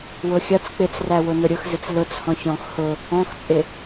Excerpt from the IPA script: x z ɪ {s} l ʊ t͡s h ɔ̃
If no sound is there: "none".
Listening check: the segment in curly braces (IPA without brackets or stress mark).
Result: t͡s